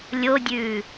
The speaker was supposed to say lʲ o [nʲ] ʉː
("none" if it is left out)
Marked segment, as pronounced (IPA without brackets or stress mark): dʲ